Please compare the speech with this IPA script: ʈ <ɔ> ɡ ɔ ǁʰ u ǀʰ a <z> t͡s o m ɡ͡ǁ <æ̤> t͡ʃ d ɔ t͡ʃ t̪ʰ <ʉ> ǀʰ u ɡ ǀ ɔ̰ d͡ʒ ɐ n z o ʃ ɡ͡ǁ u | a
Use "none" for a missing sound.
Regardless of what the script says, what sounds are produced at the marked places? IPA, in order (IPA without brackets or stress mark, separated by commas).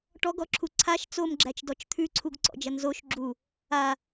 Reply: ɔ, ʃ, æ, ʉ